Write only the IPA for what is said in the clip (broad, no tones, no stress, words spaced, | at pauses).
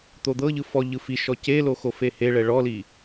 t̪od̪ɤʎɯ fɔ ʎɯfiʃɔ celo xofeheɭɛ ɭɔli